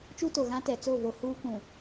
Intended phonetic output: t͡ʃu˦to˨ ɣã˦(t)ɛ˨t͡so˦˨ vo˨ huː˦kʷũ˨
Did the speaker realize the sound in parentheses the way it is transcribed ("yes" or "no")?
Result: yes